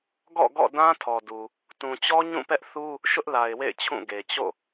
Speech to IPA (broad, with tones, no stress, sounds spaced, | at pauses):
ɡ ɔ̰˦˨ ɡ ɔ̰˦˨ d ã˦ tʰ ɔ˨ d u˨ | t ũ˨ t͡ɕ ɔ˦ ɲ ũ˦˨ p ɛ˦ ʔ θ u˦ | ʃ ʊ˦ ʔ l a˨ ɪ̯ w ḛ˦˨ ɪ̯ t͡ɕʰ ũ˦˨ ɡ e˨ t͡ɕ o̰˦˨